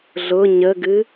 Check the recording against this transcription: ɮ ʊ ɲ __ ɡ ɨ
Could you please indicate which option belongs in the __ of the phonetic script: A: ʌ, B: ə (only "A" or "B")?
B